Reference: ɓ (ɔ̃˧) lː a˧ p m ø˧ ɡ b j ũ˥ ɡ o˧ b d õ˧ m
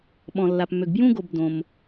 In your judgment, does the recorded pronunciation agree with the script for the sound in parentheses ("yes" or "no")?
yes